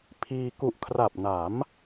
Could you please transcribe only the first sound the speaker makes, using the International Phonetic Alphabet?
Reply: pʰ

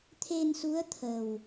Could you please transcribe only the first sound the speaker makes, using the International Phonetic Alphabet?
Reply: t̪ʰ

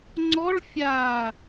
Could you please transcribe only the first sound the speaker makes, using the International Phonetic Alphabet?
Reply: ŋ͡ǀ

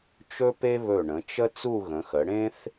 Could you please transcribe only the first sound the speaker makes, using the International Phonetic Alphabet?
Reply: t͡ʃ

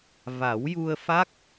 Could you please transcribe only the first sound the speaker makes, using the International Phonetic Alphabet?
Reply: v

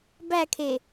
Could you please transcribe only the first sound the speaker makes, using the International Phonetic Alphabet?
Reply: b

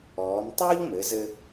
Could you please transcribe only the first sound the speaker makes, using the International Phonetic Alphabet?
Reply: ɔː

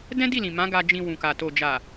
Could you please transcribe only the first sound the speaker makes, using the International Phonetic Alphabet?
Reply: d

